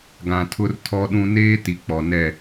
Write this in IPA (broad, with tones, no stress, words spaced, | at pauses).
ɡã˨tʰʊ˦rtʰɔ˦ɗũ˦ neː˦ti˨ k͡pɔ˨nɛ˦˨